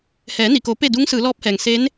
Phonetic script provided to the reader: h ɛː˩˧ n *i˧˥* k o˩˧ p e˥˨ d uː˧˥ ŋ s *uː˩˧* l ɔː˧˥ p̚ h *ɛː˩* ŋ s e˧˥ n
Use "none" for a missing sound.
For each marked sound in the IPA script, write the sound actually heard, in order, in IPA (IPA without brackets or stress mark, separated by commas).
i˩, ɯː˩˧, ɛː˩